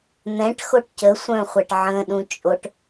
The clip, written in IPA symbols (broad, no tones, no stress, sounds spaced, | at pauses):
n̪ ɛ̃ ʈ x o ʈ c ə sʷ œ̃ χʷ æ ʈ ʕ ə̃ ɗ ũ t͡ʃʼ o ʈ